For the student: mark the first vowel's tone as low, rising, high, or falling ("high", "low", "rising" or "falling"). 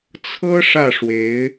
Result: high